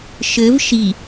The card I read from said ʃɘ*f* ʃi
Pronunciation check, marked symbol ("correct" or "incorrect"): incorrect